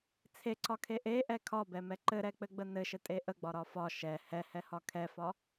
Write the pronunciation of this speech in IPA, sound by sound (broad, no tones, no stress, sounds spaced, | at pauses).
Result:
t͡sʰ e ǀ ɒ kʰ e ʔ e ʔ ɛ kʰ ɒ b ɛ m ɛ ǃ ɘ ɾ ɛ k͡p ɘ ɡ͡b ə n ɘ ʃ ɘ tʼ e ʔ ə ɡ͡b ɒ ɾ ɒ f ɒ ʃ ɛ h ɛ h ɛ h ɒ kʰ ɛ f ɒ